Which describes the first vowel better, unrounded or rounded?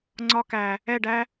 rounded